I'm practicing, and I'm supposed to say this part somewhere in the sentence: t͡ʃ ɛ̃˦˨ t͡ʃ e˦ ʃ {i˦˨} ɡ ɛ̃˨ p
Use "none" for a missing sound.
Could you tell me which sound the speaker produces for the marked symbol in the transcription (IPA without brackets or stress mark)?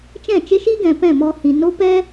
i˦